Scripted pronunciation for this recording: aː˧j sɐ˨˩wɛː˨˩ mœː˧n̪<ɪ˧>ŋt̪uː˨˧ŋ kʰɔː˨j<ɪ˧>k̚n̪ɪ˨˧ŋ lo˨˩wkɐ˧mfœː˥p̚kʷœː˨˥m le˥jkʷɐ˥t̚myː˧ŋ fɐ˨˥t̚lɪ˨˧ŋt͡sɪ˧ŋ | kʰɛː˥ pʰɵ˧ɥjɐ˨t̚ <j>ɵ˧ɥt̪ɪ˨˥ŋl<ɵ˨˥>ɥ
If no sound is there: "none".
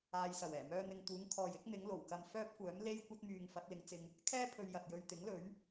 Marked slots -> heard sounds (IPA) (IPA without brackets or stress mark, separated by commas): ɪ˨, ɪ˨˥, j, ɵ˨˥